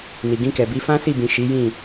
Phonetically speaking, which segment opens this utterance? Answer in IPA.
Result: n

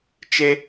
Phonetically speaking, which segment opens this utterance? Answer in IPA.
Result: t͡ʃ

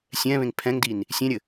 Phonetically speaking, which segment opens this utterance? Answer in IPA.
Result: sʲ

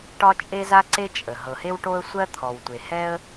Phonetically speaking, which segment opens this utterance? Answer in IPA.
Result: ʈ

